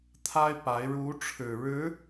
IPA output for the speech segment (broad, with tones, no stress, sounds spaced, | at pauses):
t̪ʰ a˥ ɪ̯ p a˧˥ ɪ̯ ɻ u˧˥ ʈ͡ʂʰ ɻ̩˨˩ ɻ ɻ̩˧˥